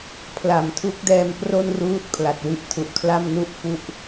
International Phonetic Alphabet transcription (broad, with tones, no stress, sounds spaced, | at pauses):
pʰ l a˨˩ m tʰ u˦˥ k̚ d ɛː˧ m p r o˥˩ n r uː˦˥ t̚ pʰ l a˨˩ t̚ w i˦˥ ʔ tʰ u˨˩ ʔ kʰ l a˥˩ m n u˥˩ ʔ f u˦˥ ʔ